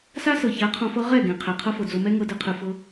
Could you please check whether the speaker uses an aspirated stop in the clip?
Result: yes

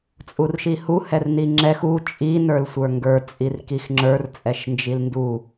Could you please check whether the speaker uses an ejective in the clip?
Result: yes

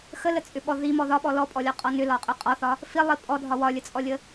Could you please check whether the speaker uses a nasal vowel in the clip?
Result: no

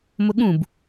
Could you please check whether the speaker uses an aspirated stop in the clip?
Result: no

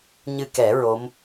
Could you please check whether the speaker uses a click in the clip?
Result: no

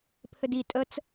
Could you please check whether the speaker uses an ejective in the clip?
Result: yes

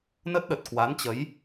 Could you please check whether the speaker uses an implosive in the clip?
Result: yes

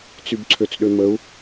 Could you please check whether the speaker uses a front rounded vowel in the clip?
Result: yes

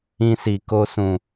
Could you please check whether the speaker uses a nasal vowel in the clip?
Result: yes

